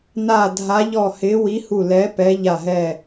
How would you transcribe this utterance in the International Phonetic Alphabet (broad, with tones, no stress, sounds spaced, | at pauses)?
n a˧˩ dʱ a˨˦ ʎ ɔ˧˩ h ɪ˨˦ w i˨˦ h u˧˩ l ɛ˨˦ p ɛ˨˦ ʎ a˧˩ ɦ ɛ˧˩